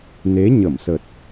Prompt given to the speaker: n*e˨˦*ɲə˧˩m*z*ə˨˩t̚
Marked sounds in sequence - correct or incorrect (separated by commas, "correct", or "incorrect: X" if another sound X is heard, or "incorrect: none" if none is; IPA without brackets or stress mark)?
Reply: correct, incorrect: s